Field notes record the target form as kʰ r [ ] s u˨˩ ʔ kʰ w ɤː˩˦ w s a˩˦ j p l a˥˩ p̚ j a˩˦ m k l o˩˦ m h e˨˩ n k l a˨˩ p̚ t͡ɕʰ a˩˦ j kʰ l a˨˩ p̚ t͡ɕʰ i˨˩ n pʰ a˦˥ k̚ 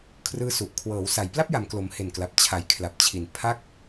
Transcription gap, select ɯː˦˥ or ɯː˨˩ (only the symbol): ɯː˦˥